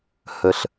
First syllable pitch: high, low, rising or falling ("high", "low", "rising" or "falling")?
low